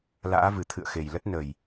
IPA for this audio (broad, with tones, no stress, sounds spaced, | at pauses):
l a̰ː˧˥ v ɨ˨˩ t̪ʰ ɨ̰˧˨ ə̯ x e˨˩ j l ə˦˥ t̚ n ə˨˩ j